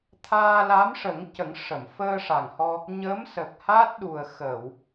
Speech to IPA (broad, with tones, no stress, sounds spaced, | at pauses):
t̪ʰ aː˧ l a˧˥ m ʂ ə˨˩˦ ŋ c ə˨˩˦ ŋ ʂ ə˨˩˨ m f əː˧ ʂ a˨˩ ŋ h ɔ˧ | ɲ ə˧˥ m s ə˨˩ k̚ h a˦˥ t̚ ɗ u˨˩ ə̯ x ə˨˩˨ w